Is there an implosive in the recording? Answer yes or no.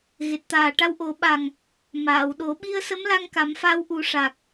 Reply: yes